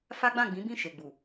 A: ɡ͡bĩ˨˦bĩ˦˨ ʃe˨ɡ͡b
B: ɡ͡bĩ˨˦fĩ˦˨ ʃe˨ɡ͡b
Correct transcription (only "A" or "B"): A